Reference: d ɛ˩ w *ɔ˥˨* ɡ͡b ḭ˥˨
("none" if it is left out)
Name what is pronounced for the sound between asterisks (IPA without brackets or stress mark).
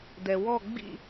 ɔ˥˨